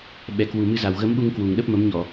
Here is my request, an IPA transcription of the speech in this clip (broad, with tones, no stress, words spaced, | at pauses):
ɓɛ˨˩kwu˨˩mɨ˧za˨˩w ɣə˨˦mɓu˧ŋ kwu˨˩ŋɗə˦˥p̚mə˨˦mɲɔ˧˩˨